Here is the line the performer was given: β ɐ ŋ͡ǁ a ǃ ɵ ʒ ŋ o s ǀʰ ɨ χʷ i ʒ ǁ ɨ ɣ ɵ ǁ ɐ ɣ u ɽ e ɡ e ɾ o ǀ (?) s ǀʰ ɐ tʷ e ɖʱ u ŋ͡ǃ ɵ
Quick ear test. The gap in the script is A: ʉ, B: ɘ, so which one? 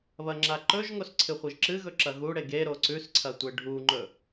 A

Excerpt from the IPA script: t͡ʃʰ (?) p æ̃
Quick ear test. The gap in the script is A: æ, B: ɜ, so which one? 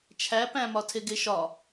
A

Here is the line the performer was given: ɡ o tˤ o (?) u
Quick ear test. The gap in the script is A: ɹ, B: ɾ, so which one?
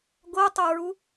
A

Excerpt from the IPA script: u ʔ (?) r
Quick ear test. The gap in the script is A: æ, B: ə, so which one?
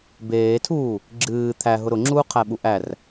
A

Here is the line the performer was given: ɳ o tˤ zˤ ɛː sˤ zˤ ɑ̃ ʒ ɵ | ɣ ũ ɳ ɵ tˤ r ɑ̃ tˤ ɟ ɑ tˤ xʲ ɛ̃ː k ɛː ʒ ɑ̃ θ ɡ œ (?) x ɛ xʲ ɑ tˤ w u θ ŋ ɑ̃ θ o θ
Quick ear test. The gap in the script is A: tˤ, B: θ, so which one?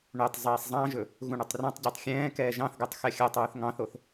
A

